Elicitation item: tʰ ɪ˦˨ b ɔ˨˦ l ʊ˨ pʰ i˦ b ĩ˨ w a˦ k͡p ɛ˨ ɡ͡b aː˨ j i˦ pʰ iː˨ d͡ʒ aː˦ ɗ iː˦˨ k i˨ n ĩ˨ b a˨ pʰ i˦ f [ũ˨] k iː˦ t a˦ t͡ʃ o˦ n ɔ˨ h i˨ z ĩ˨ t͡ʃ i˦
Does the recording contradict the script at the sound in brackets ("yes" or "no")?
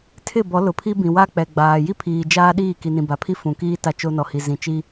no